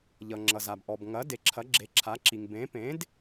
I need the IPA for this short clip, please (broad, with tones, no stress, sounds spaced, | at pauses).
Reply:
ʎ ʌ˩ ŋ͡ǁ ʌ˩ z a˩ b ʔ ɔ˩ b ŋ ɐ˩˥ d e˩ ǁʰ ɐ˩˥ ɡ͡ǁ e˩˥ ǁʰ a˩˥ ǁ i˩ ŋ b ẽ˩˥ p ẽ˩˥ d